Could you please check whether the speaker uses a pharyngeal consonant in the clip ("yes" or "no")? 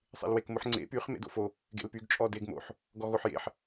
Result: yes